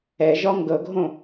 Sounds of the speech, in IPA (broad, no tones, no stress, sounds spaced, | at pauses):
ɛ ʒ ɔ ŋ ɡ ɤ ɡʱ õ